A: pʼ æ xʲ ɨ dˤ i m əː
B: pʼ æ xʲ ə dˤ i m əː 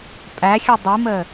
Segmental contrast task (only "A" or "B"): A